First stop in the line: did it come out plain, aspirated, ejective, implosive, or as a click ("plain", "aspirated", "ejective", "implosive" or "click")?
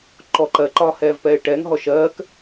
click